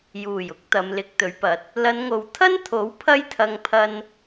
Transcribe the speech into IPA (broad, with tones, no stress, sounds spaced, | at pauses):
j uː˨˩ j ʊ˨˥ k̚ t̪ ɐ˨˧ m l ɪ˨˥ k̚ t̪ ɵ˨˥ ɥ p ɐ˨˥ t̚ | l ɐ˨˧ n ŋ o˨ w t̪ʰ ɐ˥ n t̪ʰ o˨˥ w pʰ ɐ˥ j t̪ʰ ɐ˧ ŋ pʰ ɐ˧ n